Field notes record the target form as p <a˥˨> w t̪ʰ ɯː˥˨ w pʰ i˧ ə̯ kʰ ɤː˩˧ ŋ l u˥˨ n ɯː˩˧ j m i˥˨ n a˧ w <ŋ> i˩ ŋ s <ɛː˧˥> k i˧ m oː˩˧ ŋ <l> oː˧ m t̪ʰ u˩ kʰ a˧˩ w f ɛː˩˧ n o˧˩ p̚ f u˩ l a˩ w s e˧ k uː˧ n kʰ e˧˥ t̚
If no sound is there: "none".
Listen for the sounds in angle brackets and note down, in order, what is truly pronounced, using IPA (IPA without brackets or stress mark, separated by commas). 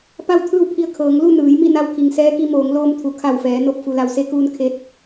a˥˨, kʰ, ɛː˧˥, l